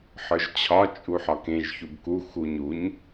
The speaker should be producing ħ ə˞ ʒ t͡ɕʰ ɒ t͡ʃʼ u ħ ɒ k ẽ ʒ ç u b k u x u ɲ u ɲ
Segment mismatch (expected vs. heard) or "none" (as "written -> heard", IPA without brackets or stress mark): none